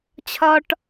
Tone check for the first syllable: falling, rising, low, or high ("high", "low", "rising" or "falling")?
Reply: high